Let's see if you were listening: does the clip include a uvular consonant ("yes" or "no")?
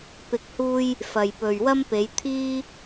no